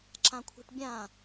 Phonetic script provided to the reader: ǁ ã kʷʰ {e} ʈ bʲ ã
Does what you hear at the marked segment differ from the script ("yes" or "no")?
yes